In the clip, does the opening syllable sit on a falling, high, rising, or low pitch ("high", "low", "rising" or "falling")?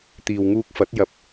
low